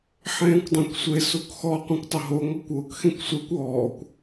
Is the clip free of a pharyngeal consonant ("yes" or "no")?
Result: no